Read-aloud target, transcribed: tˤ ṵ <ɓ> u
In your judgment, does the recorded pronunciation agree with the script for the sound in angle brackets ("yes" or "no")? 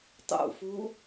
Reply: no